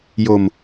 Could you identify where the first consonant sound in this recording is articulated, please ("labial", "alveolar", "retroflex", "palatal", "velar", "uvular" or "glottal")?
palatal